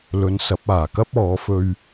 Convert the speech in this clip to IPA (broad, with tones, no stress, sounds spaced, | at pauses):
l ɵ˨˧ n s ɐ˨˥ p̚ aː˨˩ k ɐ˥ p̚ ɔː˨˧ f ɵ˧ ɥ